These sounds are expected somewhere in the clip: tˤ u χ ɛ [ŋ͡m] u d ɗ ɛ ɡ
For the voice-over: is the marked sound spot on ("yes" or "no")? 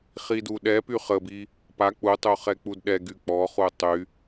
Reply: no